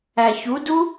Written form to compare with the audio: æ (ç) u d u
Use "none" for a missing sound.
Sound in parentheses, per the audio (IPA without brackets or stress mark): ç